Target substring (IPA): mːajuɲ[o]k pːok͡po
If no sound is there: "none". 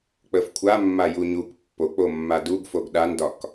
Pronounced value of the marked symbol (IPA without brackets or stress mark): u